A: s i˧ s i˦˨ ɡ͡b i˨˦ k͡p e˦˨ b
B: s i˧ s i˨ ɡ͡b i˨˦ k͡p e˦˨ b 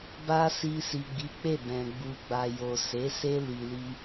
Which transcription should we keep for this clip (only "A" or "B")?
B